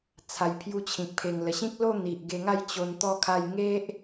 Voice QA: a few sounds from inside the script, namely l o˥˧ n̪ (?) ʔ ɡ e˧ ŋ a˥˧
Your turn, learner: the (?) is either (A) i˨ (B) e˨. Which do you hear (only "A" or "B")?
A